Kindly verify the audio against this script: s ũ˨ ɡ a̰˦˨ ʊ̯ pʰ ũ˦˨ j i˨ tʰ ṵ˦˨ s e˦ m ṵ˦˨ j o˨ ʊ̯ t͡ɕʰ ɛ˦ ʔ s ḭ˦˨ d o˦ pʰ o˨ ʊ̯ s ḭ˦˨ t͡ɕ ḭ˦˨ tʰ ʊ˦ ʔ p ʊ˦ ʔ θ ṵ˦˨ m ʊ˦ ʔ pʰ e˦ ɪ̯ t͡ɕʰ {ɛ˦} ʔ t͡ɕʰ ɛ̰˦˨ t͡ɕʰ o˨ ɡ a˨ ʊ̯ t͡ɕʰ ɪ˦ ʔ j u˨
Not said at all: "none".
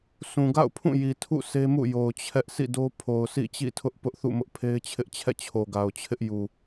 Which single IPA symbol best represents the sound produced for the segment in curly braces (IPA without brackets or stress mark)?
ɪ˦